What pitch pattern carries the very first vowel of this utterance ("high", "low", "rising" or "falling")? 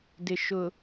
low